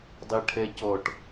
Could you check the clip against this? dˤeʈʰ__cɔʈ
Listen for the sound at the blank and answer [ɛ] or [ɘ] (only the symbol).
ɛ